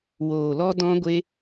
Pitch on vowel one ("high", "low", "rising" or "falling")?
low